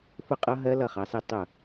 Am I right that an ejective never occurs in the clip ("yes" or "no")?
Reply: no